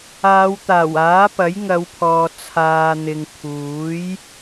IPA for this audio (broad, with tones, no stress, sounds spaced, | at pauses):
aː˨˧ w t̪ aː˨˩ w aː˨˥ p ɐ˨˥ j ŋ ɐ˨˧ w pʰ ɔː˨ t͡sʰ aː˨ n̪ ɪ˨ ŋ t̪ʰ uː˨˥ j